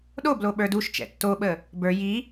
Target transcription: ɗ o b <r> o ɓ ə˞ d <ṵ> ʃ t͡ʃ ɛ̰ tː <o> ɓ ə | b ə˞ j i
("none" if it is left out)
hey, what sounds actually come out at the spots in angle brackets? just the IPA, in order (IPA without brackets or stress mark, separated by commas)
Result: l, u, o